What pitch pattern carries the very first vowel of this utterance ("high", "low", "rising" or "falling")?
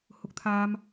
high